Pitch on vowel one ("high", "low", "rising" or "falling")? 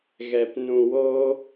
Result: low